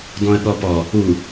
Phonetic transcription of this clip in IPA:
dɔ̃ə̯ɠɔpɔ | u

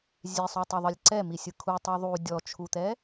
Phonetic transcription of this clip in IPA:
zʲesˤotˤɯðˤɯlʲ ǀɛmisʲɯ kʰutˤi ðˤu dʲɔt͡ʃʰut̪ɛ

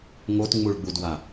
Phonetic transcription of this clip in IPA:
ŋotŋ͡muɭɡ͡budwa

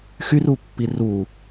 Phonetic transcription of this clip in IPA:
xyrupːi ru

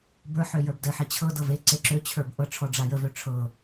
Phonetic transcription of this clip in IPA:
bə˞ħø jə˞bdəħe t͡ɕʰɤ dɤveǀe ǁøt͡ɕʰə˞b ʔɤʈ͡ʂʰɔ ɖ͡ʐajəvø ʈ͡ʂʰɤ

